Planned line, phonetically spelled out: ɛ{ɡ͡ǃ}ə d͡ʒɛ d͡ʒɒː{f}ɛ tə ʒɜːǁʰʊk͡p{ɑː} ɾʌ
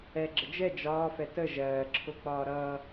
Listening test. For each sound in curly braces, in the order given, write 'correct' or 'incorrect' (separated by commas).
incorrect, correct, incorrect